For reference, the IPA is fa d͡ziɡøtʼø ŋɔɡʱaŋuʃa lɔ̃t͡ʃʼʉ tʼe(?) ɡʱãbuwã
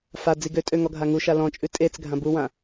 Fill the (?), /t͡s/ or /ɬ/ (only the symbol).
t͡s